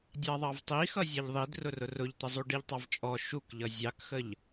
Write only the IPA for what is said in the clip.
dʲ ɑ ðˤ ɑ v tˤ i x ʌ zʲ ɑ ʎ ðˤ i d r ʊ r ʊ r ʊ ʎ t̪ ə zˤ u ɖ i ʎ tˤ ɑ v t͡ʃʼ ɔ ʃ u k ʎ ʌ zʲ ɑ k x ə ʎ

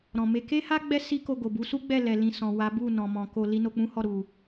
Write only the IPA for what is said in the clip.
ɾ ɔ̃˨ m e˧ k e˦ h a˦ ɡ͡b ɛ˦ s i˦ k o˧ ɡ o˨ b u˨˦ s u˦ ɡ͡b ɛ˦˨ l ɛ˨ l ĩ˨ s ɔ̃˨ w a˨˦ b u˦˨ n ɔ̃˨ m ɔ̃˨ k o˧ l i˦ n o˧ k͡p ũ˦ h ɔ˦˨ ɾ u˨

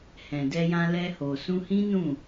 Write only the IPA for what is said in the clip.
h ɛ̃˨ d ɛ˧ j ã˧ l ɛ˧ h o˨ s ũ˧ h ĩ˦ n ũ˦˨

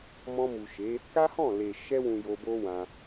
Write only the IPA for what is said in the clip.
m ɔ̃˧ m u˨ ʃ e˨˦ | k a˦ h ɔ̃˦˨ l e˨ ʃ ɛ˧ w ũ˨ j o˧ b o˦ w ã˧

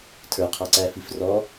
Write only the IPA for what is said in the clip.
tʰ ə˞ qʰ ɑ ǀ æː f i f r ɔ

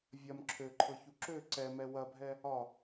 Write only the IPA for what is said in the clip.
vʲ ɐ m ǁʰ ø ǃʰ ɤ ç u ǁ ø ǀ ɛ m ɛ w ɐ bʱ ɛ | ɒ

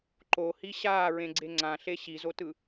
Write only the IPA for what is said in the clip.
ǃ o h i ɕ aː ɹ ẽ ɡ͡ǀ e ŋ͡ǀ ã ɬ e ɕ i z o t ɯ

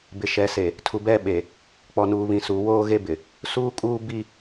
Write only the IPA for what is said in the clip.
b ɪ˨ ʃ ɛ˨ s e˨ | tʰ u˨ b ɛ˦ ɓ e˨ | k͡p ɔ˨ n uː˨ β ĩ˨ s uː˨ w oː˦ ɣ e˦ b ɪ˨ | s uː˦ kʼ uː˦ b i˦

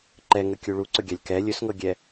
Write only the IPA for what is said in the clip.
ǃ ɛ ŋ ə kʲ u ɭ u ǀ ɵ ɡʲ a lʲ k ɛ lʲ ɵ s ŋ ɤ ɡʲ ɛ

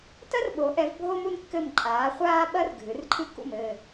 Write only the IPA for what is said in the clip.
t ɐ˥ r ɓ o˨˥ ʔ ɛ˨˥ v bʱ o˥ m u˥ n kː ɘ˥˨ m ǃʼ aː˨˥ χʷ aː˥ ɓ ɐ˥ r ɡʱ ɨ˨˥ r ǃʰ ɨ˥ k ṵ˥˨ m ɘ˥˨

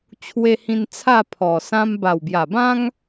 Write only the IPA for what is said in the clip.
t͡ɕʰ w e˧ h ĩ˧ n t͡sʰ a˥˧ pʰ ɔ˨˩ s ã˦ m b a˨˩ w b j a˨˩ b ã˦ ŋ

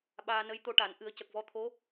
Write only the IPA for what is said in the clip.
ɓ aː˧ n ə˧˥ j t̪ o˧ ʈ a˨˩˦ n ʔ ɨ˨˩˦ ə̯ c ə˨˩ k̚ v ɔ˧ t̪ʰ o˧˥

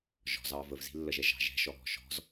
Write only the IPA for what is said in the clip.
ʒ ɔ̤ z ɑ v ə v z i̤ lː ə ʒ ɛ ʒ ɑ̤ ʒ ɛ̤ ʃ ɔ ɦ ɔ̤ ʃ ɔ̤ z

